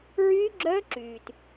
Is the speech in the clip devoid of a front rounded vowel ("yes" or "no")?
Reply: no